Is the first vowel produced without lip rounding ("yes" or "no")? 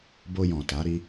no